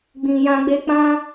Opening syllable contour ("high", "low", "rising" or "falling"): low